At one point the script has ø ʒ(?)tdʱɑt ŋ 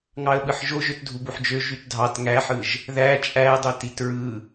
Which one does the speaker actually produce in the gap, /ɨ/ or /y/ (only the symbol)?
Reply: y